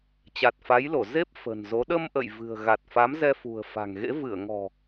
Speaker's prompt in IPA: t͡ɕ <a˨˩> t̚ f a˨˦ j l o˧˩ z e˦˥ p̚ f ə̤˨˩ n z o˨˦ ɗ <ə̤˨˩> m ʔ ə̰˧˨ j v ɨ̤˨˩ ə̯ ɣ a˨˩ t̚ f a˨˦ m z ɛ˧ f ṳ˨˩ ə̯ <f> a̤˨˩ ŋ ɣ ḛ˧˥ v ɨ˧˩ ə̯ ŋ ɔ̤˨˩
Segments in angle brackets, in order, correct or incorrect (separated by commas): correct, incorrect, correct